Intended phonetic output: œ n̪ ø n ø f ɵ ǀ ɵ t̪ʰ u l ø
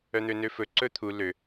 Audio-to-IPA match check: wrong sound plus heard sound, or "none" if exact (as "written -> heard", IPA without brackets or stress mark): none